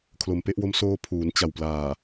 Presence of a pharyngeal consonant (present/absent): absent